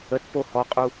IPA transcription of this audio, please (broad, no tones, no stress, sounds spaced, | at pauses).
ə t p o h ɔ qʼ u